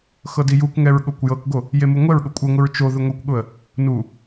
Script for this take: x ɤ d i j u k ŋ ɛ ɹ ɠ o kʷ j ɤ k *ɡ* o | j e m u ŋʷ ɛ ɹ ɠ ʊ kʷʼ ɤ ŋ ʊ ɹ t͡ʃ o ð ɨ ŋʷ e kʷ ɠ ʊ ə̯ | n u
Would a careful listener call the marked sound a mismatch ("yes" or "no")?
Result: no